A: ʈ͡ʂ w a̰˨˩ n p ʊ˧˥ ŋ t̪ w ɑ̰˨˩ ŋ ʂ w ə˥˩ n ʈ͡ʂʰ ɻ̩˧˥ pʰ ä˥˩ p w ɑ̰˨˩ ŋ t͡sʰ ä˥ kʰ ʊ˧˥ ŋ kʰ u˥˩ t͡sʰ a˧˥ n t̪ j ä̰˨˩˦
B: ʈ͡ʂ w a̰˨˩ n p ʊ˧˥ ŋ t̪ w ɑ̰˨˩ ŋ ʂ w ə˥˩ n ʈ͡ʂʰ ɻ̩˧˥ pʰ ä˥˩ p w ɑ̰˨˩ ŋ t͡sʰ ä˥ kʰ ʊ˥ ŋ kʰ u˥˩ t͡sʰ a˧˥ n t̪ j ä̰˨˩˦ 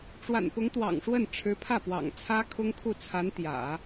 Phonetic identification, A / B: B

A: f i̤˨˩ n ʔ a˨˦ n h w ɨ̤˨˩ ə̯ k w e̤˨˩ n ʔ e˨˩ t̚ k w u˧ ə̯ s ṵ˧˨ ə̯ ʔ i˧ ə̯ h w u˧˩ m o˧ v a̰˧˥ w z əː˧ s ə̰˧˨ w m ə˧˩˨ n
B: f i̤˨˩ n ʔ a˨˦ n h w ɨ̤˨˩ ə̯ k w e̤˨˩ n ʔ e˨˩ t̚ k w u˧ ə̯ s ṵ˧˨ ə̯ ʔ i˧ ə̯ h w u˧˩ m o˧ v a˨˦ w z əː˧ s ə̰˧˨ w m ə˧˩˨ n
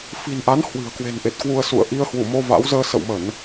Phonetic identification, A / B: A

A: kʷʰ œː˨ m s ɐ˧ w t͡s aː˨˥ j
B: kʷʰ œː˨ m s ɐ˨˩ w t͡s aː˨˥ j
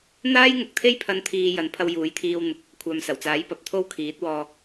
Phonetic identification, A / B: B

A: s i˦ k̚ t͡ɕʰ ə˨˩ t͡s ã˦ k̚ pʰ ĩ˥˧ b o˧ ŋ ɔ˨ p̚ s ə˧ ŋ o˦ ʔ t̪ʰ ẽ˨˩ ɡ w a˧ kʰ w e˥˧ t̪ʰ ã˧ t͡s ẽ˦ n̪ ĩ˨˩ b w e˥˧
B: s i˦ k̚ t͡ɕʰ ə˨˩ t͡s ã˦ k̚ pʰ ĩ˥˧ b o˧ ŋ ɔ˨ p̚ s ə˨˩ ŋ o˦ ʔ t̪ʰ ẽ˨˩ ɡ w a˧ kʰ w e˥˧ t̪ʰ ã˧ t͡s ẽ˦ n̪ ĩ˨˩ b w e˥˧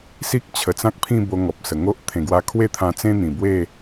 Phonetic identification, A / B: B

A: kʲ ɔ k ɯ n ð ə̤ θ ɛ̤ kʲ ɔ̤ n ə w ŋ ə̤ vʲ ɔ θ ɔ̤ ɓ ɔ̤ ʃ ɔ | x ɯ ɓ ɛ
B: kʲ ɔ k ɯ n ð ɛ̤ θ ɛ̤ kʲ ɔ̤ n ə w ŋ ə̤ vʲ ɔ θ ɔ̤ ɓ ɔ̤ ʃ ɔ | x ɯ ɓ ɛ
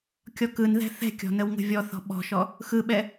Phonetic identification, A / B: B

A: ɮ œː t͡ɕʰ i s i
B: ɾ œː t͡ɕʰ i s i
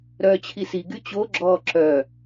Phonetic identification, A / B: B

